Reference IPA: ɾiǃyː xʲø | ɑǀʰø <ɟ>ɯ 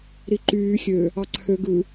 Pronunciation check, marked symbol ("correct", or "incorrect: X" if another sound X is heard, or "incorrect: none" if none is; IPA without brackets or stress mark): incorrect: ɡ